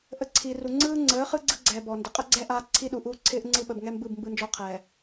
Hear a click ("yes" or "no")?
yes